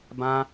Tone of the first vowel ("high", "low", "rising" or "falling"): high